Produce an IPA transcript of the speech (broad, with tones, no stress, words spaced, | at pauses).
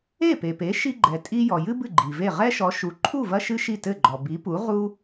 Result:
e˥˩pe˩pe˩˥ʃi˧ ɡ͡ǃɛ˩tʼi˧ jɔ˩jɨ˥ bɨ˥˩ɡ͡ǃi˩ve˥˩ ʁɛ˥ʃɔ˩˥ ʃu˩ǃʰu˥˩ vɐ˥ʃɨ˥ʃi˥˩ tɘ˥˩ɡ͡ǃɔ˩ bi˩˥pu˩˥ ʁu˥